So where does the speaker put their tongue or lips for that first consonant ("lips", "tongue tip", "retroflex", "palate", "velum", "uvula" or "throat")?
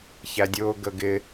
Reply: palate